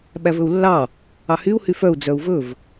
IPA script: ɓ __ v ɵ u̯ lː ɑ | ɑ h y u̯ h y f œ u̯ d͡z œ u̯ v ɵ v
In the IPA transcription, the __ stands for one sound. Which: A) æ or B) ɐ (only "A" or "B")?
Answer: A